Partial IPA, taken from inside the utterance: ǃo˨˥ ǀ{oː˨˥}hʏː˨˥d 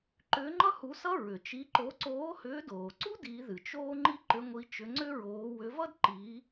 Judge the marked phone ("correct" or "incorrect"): correct